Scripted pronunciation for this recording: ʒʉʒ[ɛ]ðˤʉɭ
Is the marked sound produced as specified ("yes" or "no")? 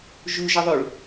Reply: no